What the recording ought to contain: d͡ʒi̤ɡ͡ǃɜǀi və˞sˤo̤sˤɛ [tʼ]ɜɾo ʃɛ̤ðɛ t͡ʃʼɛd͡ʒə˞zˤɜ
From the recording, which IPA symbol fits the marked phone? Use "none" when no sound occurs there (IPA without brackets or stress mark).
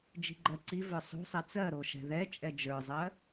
t͡s